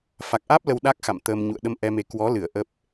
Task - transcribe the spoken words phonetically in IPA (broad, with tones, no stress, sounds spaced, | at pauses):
f a˨˩ k̚ ʔ aː˦˥ p̚ l ə˧ w ɗ a˦˥ k̚ x a̰˧˨ m t̪ əː˧ m ɲ ṵ˧˨ ə̯ ɗ ə˧ m ʔ ɛ˧ m e˨˦ k w ɔ˨˦ l ɨ˧˩ ə̯ ʔ ə˦˥ p̚